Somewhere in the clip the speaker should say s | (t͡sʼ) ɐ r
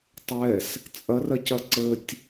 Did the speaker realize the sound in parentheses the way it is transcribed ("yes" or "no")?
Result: yes